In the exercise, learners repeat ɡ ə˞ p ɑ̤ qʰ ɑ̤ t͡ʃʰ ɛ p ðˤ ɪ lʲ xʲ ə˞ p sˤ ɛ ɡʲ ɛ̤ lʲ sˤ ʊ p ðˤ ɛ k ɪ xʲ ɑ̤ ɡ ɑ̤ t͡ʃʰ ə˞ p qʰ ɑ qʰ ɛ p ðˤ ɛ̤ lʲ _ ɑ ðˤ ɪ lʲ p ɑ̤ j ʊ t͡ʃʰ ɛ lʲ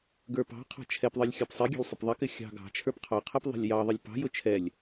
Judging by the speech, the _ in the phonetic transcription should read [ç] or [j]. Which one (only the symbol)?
j